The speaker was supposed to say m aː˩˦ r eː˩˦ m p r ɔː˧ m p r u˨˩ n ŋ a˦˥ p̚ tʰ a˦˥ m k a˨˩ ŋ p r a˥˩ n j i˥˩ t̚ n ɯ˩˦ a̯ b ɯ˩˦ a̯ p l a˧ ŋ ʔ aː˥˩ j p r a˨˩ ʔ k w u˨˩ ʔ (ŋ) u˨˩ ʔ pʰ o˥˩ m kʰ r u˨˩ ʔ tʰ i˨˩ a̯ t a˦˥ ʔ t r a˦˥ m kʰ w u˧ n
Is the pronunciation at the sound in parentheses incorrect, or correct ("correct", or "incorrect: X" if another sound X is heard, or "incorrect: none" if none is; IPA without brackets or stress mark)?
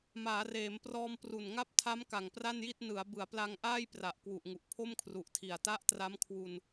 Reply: correct